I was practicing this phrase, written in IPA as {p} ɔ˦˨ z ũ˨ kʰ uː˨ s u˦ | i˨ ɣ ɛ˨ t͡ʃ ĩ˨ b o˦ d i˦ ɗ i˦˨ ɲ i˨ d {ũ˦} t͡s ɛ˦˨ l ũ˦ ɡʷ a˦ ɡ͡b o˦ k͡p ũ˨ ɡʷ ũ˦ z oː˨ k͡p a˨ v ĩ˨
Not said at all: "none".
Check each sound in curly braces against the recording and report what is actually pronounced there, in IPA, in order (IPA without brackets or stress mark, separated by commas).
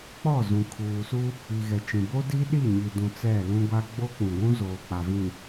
k͡p, ũ˨